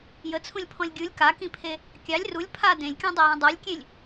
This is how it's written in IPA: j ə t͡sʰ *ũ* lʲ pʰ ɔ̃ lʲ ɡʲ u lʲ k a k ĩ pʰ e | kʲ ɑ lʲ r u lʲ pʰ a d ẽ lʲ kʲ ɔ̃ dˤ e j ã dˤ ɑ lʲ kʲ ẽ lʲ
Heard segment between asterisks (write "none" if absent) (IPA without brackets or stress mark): ũ